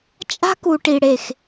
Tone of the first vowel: high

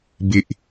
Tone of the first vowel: high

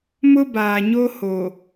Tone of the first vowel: high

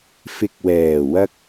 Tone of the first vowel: low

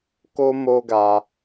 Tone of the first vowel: high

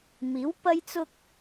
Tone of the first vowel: rising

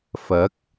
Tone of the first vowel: rising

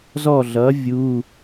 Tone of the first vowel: falling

